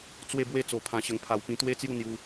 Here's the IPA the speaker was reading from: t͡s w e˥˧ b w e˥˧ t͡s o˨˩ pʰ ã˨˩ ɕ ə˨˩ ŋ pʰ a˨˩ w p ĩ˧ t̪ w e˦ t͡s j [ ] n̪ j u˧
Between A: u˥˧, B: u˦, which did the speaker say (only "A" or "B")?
A